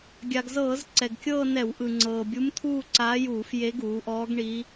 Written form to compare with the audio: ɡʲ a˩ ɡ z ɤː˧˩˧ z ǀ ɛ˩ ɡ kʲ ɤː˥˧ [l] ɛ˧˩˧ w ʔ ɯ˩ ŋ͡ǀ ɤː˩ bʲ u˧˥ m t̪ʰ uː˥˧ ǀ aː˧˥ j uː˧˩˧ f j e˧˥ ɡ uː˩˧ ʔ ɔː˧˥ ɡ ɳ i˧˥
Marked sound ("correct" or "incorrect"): incorrect